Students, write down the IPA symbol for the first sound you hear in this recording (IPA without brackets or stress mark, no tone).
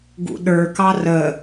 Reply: ɡ